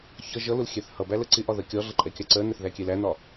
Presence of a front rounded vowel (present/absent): absent